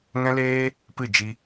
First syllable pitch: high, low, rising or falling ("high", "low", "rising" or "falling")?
high